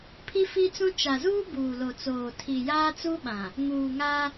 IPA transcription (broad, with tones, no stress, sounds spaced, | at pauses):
pʰ i˦ f i˦ t͡s ũ˦ t͡ʃ a˨ z uː˦ b uː˨ l o˨ t͡s oː˨ tʰ i˨ j aː˦ t͡s u˦ ɓ ã˨ | ŋ uː˨ ŋ a˦